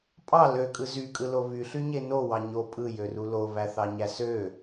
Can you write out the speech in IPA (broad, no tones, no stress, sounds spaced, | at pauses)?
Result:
pʼ ɑ l ø kʼ ɯ z y kʼ ɯ l o β y ɬ y ɲ e n o w ɑ ɲ o pʼ ɯ j ø r u l o β æ θ ɑ ɲ æ s ø